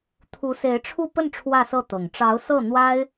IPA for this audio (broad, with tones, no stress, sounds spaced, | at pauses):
t̪ʰ u˧˥ s e˧˥ ɪ̯ ʈ͡ʂʰ u˥˧ p ə˥˧ n ʈ͡ʂʰ w ä˥˧ s ɤ˥˩ t̪ ɤ˨˩ ŋ ʈ͡ʂ ɑ˧˥ ʊ̯ s ɤ˥˩ n̪ w a˥ ɪ̯